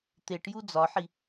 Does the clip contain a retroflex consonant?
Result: yes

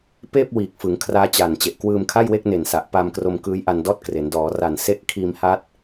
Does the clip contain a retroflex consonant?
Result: no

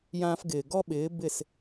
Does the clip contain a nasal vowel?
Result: yes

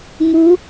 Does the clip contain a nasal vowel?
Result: no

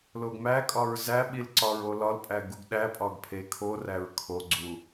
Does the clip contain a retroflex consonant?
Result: no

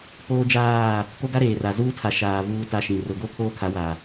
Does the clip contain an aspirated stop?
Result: yes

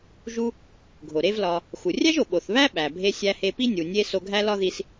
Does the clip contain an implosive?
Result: yes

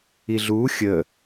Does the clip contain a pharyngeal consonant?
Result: no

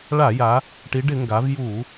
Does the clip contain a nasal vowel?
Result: no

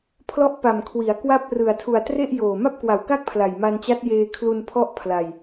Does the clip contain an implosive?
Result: no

